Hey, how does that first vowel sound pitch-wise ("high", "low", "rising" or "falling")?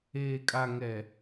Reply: low